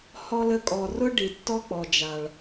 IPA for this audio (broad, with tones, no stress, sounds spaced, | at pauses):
h ɔ˧ l ə˧ kʼ ɔ˨ r ʊ˦ ɖ i˨ tː ɔ˦ k͡p ɔ˨ d͡ʒ a˨ ɭ